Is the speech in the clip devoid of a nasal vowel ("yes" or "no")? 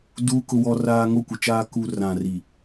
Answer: no